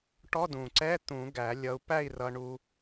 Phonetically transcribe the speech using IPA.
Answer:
ʈ ɔ˧˥˧ d ũ˨˩ ǀ ɛ˧˥˧ t̪ ũ˨˩˦ ɡ æ˨˩˦ lʲ ʌ˧ u̯ p æ˥˨ i̯ r ʌ˧ ɳ u˧

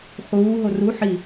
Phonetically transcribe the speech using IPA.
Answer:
χ uː ɦ o r u ħ i

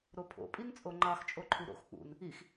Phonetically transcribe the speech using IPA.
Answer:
ɾ o pʰ o̰ pʼ i n t͡sʼ o ŋ͡ǃ ɑ x t͡ʃʼ o ǃʰ u ɾ o̰ x k͡p ṵ n | i x

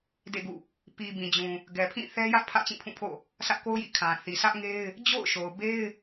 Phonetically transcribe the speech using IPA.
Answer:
d ḛ˦˨ ɡ ṵ˦˨ | p i˨ b ĩ˨ d͡ʑ ũ˨ | ɡ ɛ˨ pʰ ĩ˦˨ θ ɛ˦ j ä˦ ʔ pʰ ä̰˦˨ t͡ɕ ĩ˦˨ pʰ ũ˦˨ pʰ o̰˦˨ | sʰ ä˦ ʔ k o˦ ʊ̯ j ḭ˦˨ kʰ ã˨ θ i˨ s ä˦ ʔ ŋ e˦ ɪ̯ | d͡ʑ o̰˦˨ ʊ̯ ʃ o˨ ʊ̯ b e˦ ɪ̯

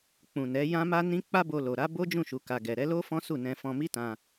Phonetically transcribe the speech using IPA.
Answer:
k͡p ũ˨ n ɛ˨˦ j ã˦ m a˦ n ĩ˦ k͡p a˦ b o˧ l o˨ ɾ a˨˦ b o˦ d͡ʒ ũ˦˨ ʃ u˨ k a˨ ɡ ɛ˨ ɾ ɛ˨˦ l o˦ f ɔ̃˦ s u˦˨ n ɛ̃˧ f ɔ̃˧ m i˦ t ã˧

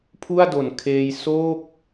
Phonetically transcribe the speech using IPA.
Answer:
pʰ u˥˩ a̯ d o˨˩ n kʰ eː˧ j s oː˥˩ k̚

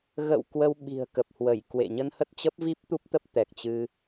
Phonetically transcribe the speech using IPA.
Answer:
ɣ ə̰˧˨ w k w ə˧ w ɓ i̤˨˩ ə̯ k ə˨˩ p̚ h w ə˧˩ j k w ḛ˧˨ ɲ ə˧ n h ə˦˥ t̚ t͡ɕ ə˦˥ p̚ v i˦˥ p̚ t̪ u˦˥ p̚ t̪ ə˦˥ p̚ t̪ ɛ˨˩ k̚ t͡ɕ ɨ˧

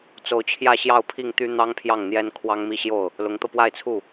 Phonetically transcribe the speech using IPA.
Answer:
t͡s o˧˥ ʊ̯ t͡ɕʰ j ä˥˧ ɕ j ɑ˥˧ ʊ̯ pʰ i˥˩ ŋ t̪ y˥ n̪ ɑ˥ ŋ pʰ j ɑ˥˩ ŋ n̪ j ɛ˥ n kʰ w ɑ˥ ŋ m i˥˧ ɕ j o˥˩ ʊ̯ | l ʊ˧˥ ŋ t̪ ɤ˧ p w a˥˧ ɪ̯ t͡sʰ u˥˩

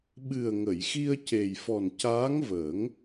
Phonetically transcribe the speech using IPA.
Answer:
ɓ ɨ˨˩ ə̯ ŋ ə˨˩˨ j x i˧ ə̯ c e˨˩ j f ɔ˨˩ n c aː˧˥ ŋ v əː˨˩˦ ŋ

